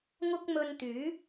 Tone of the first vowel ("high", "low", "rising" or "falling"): high